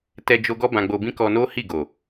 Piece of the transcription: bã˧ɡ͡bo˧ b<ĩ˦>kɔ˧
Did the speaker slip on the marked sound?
no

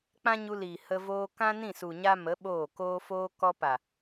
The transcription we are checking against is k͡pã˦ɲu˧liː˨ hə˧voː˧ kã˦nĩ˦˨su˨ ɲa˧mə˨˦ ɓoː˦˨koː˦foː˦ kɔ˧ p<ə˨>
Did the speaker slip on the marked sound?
yes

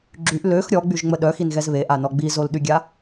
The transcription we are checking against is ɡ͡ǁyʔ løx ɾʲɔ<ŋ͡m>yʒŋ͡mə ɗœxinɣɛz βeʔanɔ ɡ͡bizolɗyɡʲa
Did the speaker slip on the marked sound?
yes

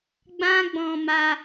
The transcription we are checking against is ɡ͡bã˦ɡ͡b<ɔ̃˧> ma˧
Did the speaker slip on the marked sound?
no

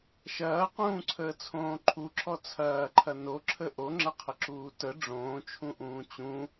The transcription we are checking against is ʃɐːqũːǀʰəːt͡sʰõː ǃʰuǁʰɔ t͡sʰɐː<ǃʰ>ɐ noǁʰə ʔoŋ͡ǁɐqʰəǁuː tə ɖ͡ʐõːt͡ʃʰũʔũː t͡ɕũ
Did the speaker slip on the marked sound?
no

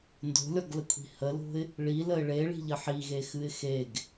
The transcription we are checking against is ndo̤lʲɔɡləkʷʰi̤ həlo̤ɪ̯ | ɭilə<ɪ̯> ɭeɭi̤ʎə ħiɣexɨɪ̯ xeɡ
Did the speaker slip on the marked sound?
no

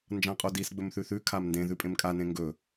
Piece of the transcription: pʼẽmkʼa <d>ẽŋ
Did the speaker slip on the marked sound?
yes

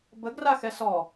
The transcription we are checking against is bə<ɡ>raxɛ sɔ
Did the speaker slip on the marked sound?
no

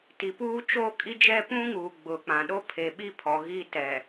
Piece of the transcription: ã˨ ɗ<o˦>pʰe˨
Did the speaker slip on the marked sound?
no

